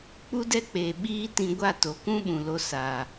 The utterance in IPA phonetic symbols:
k͡pu˦dɛ˦k͡peː˨ ɓiː˦tĩ˧ ɡʷa˦˨to˨˦ kũ˦ɓũ˨lo˧ sa˨

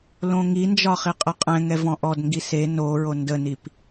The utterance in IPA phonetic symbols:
lõŋind͡ʒɒ χiqʼəqʼɛ̃ŋɛ vɔ̃ʔɔdŋɡi se noɹo ndənip

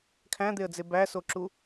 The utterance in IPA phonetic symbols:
kʰæ̃d̪eə̯d͡ze bæsoǁu

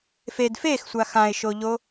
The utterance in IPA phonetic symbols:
fed fexsʷa xãɪ̯ʃoʎo

